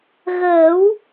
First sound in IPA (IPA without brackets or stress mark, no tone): ɣ